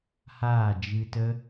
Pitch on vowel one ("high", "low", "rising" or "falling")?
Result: falling